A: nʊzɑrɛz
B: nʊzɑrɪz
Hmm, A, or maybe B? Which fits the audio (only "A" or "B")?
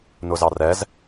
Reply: A